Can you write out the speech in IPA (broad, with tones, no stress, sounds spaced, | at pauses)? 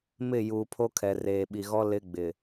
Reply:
m ɪ˦˨ j uː˨ pʰ o˦ kʰ ɛ˨ r eː˨ ɓ i˨ ɣ ɔ˦ l ɪ˦ ɡ͡b ɪ˨